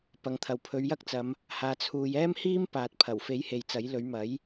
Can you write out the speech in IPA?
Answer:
p ɐ˨ ŋ t̪ʰ ɐ˨ w pʰ ɵ˨˧ ɥ j ɐ˥ k̚ t͡s ɐ˨˧ m | h aː˨ t͡sʰ uː˨ j ɛː˥ m h iː˥ m p aː˨ t̚ pʰ ɐ˨˩ w f e˨˥ j h e˨ j t͡s ɐ˨˥ j l ɵ˨˥ ɥ m ɐ˨˥ j

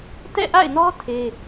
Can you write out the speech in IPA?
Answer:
t ɛ̰˦˨ ʔ a̰˦˨ ɪ̯ n ɔ˦ tʰ e˦

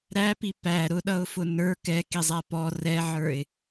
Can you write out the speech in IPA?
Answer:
ɾ æ p i p æ ɾ ʊ ɗ ʌ ʊ̯ f ʊ n ə˞ k ɛ k i zˤ æ p ɔ r ɛ ʕ ə˞ ɪ̯

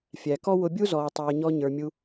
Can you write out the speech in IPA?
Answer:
fʲ æ˨ k ɔ˦ w ʊ˧ bʲ u˦ z ɔː˨ tˤ ɛː˨ ɲ ɔ˧ ɲ ə˞˨ mʲ u˧

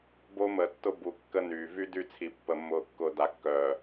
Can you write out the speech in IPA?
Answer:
b o˦ m əː˨ tː ʊ˦ b u˨ kː ə˦ n yː˨ v y˦ d y˦˨ t͡sʰ i˨ pː ə˨ mː ʊː˨ kː ʊː˨ d a˨ kː œː˨

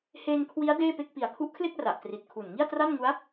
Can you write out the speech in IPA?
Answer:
h eː˧ ŋ kʰ w i˦˥ a̯ d eː˥˩ p e˥˩ k̚ p i˨˩ a̯ kʰ u˦˥ ʔ kʰ l e˥˩ k̚ r a˨˩ ʔ t r i˨˩ t̚ kʰ u˨˩ n ŋ i˥˩ a̯ t r a˥˩ n ŋ u˦˥ a̯

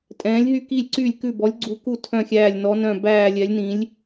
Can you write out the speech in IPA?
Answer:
tʼ ɛ̃ː˨˥ lʲ ɦ y˦˨ k i˦˨ lʲ ǀ yː˦˨ lʲ k ʉ˦˨ b ɔ˨˥ lʲ ɡ͡ǀ u˨˥ k u˦˨ tʰ œ̃˦˨ xʲ æː˦˨ lʲ n ɔ˨˥ n œ̃˦˨ b æː˦˨ lʲ ɛ˨˥ lʲ n ĩ˨˥ lʲ

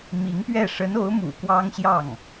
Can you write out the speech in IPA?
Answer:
m i˧˥ ŋ p ɥ ɛ˥˩ ʂ ə˧˥ n o˧˥ ʊ̯ m ṵ˨˩ k w ɑ˥ ŋ ɕ j ɑ˥˩ ŋ

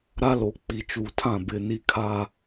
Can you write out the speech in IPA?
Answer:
ɾ a˦ l o˨ k͡p i˨ t͡ʃ uː˨ tʰ ã˦˨ b ɪ˨ n i˨ kʰ a˨

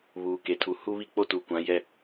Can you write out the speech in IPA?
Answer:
β uː˨ k e˨ tʰ u˨ h u˦ β i˦ k͡p o˦ t u˨ kʷ ã˨˦ j ɛ˦

